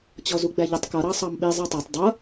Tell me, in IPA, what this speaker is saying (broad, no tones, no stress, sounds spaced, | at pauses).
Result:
t͡ɕ ɔ z u ɡ͡b æ ʎ ɪ tˤ k ʌ ɾ ɑ sˤ ɑ m ɓ i zˤ ɜ tˤ ɑ tˤ dˤ ʌ